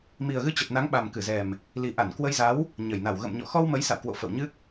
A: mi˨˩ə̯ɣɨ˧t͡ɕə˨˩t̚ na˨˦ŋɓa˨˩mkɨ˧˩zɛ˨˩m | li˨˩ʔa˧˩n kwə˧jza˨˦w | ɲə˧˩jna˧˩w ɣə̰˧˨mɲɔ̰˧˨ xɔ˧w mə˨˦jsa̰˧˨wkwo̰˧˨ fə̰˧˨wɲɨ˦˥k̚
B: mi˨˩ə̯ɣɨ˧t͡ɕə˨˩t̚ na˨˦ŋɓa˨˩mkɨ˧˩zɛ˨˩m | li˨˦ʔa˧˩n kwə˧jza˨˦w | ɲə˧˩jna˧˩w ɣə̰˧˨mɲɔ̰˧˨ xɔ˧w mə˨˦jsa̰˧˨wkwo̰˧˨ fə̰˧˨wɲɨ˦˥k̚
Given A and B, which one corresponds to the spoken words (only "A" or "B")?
A